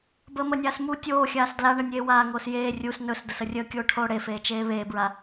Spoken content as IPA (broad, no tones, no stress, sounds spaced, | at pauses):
b əː m ə nʲ aː s m u tʲ oː xʲ aː s d l a ɳ ə nʲ eː w aː ŋ oː s j eː rʲ u s n ɵ s d ə s ə rʲ əː kʲ oː ʈʰ oː ɽ e f eː t͡ʃ eː β eː b ɹ a